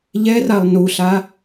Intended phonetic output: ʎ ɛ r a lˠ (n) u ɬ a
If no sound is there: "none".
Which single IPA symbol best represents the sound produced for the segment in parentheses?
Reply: n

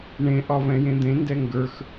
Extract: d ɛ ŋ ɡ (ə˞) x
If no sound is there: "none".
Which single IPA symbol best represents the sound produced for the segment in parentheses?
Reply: ə˞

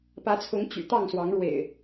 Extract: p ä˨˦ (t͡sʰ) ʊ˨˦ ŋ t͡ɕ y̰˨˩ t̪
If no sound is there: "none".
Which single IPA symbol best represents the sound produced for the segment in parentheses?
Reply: t͡sʰ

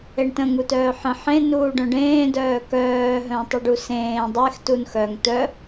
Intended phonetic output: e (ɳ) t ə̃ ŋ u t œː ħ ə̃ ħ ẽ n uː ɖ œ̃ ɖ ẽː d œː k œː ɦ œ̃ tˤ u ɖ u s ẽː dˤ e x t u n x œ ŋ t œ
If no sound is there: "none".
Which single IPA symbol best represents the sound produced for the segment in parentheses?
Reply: ɳ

